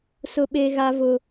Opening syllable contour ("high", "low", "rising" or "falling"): high